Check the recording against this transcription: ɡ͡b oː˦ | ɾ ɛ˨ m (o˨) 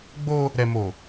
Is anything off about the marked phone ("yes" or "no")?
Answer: yes